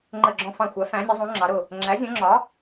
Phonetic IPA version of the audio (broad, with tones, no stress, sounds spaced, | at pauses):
ŋ͡ǃ ə˧˩ ɡ͡ǁ ɔ̃˧˩ f ɑ̃˧˩ xʷ æ˩˥ f æ̃˩˥ nʲ ɒ˩˥ zˤ ũ˩˥ ŋ͡ǁ ɑ˩˥ ɾ ʊ˧˩ | ŋ͡ǁ æ˩˥ zʲ ɔ̃˩˥ ŋ͡ǁ ɒ˩˥